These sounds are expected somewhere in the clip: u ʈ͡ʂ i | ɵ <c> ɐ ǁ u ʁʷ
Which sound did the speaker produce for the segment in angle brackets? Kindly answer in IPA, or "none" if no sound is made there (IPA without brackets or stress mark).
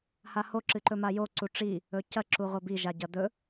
c